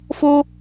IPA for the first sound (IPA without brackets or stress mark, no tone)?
f